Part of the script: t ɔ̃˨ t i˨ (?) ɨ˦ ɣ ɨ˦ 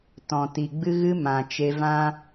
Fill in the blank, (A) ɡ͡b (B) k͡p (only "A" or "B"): A